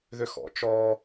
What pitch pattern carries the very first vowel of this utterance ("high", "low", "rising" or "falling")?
high